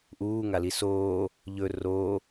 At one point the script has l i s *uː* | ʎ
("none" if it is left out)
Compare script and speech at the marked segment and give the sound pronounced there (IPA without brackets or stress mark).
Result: oː